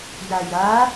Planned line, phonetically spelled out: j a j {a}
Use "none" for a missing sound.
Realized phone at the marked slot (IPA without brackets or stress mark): a